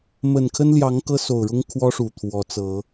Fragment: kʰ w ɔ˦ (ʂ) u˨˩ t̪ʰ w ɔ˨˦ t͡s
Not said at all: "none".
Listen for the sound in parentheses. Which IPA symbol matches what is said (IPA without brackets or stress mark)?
ʂ